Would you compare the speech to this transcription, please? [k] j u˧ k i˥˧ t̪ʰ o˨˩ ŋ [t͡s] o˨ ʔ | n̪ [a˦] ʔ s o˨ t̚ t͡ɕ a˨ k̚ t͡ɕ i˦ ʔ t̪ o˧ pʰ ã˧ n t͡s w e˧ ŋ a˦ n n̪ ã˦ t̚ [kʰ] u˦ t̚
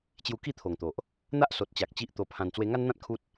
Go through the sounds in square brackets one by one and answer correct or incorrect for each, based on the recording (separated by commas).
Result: incorrect, incorrect, correct, correct